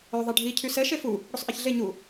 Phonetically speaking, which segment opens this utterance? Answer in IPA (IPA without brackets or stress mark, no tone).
œ